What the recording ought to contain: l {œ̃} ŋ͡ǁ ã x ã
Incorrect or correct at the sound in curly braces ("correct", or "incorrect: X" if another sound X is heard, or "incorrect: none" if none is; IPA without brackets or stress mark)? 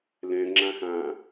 incorrect: ɛ̃